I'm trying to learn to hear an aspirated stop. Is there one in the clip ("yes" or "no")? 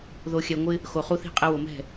no